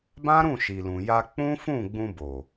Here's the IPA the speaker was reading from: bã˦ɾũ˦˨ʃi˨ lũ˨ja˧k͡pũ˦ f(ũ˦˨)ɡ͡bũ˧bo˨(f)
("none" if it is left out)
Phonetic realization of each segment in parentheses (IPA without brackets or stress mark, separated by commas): ũ˦˨, none